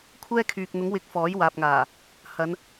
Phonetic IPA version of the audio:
kʷʰɛː˥kʰyː˨k̚n̪ʊ˨˥ŋwɪ˨˥k̚ fɔː˨˥j waː˨p̚ŋaː˨˩ | hɐ˨˧n

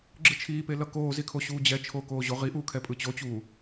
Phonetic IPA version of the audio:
ɡ͡ǁɯt͡ʃʰiːpelʌ koːzikʰoɕuː d͡ʑɛt͡ʃʰoːkoːʑo ʁiʔuːkʰɛ pʼɯt͡ɕot͡ɕuː

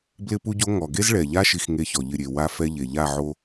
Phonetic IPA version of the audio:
blɪ˦pu˦ɟo˦ ŋɔ˨ɡe˦zɭɛ˨ʎa˦ ʃi˦xŋe˦çɔ˨ʎɪ˦˨ ɾʲe˨ wa˦fɛ˦ʎe˨ʎa˦˨ ʕo˦

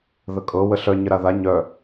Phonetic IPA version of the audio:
ðəkʼɤ wəɬœ ɲəɾaða ɲœ

